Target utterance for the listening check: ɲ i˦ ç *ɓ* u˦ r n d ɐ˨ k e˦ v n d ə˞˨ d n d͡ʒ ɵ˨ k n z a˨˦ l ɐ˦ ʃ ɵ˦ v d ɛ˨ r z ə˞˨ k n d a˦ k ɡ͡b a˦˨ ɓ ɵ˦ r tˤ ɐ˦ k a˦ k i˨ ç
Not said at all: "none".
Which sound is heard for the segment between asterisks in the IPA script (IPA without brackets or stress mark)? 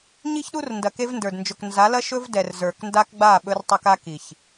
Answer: ɗ